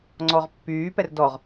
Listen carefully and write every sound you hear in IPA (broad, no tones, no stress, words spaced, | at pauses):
ŋ͡ǀɔʁpːyː pɛrdɔʁ